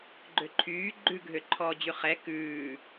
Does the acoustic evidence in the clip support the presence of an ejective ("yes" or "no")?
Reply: no